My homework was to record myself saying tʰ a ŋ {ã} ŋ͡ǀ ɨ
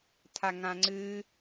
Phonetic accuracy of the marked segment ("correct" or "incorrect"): correct